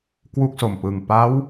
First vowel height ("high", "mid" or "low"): high